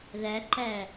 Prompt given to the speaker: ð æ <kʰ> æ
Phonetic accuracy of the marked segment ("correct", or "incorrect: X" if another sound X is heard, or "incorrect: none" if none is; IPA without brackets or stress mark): incorrect: ǃ